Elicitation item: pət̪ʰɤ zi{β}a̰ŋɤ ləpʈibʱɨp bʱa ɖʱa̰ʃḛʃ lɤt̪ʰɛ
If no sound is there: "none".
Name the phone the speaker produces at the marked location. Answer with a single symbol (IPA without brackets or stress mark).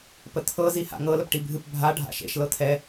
h